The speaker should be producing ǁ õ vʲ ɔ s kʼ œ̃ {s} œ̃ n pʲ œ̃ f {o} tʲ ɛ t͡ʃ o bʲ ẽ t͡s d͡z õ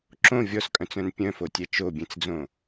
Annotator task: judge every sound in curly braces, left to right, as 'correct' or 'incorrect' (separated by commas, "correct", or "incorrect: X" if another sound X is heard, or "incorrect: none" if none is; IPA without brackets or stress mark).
incorrect: t͡s, correct